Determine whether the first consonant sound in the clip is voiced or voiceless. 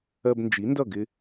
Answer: voiced